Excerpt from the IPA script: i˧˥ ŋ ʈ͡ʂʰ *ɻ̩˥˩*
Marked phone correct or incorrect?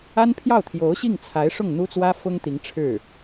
correct